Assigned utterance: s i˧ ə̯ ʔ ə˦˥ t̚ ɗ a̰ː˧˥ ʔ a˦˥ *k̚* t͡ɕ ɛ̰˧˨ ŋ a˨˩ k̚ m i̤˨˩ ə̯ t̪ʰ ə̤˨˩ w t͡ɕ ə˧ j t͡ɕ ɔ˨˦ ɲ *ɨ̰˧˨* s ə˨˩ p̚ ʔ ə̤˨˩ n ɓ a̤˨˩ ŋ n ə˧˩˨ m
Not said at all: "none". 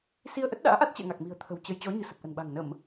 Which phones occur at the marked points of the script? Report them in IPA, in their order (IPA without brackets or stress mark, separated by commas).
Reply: t̚, ɨ̤˨˩